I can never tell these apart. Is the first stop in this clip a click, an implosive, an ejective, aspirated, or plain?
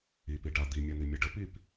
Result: plain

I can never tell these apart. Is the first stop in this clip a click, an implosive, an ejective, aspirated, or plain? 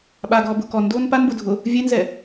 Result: implosive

